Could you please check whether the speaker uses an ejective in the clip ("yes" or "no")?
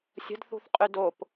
yes